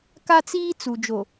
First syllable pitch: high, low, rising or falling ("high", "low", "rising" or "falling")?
high